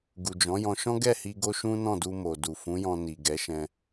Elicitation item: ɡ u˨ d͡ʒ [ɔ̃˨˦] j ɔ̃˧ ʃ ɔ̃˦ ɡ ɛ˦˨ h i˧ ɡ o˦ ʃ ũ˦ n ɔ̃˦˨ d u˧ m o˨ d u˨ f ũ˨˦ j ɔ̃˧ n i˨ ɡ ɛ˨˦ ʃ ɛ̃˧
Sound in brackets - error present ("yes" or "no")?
no